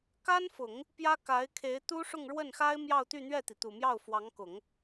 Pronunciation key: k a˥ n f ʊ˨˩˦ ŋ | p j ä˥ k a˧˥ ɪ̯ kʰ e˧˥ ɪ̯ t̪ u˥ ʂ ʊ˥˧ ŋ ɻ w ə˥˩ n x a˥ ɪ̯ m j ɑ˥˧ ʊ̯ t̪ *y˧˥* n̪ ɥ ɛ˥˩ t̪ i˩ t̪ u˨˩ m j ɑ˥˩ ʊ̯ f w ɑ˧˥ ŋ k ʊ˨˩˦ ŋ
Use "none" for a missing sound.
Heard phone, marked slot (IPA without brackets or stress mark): y˥˧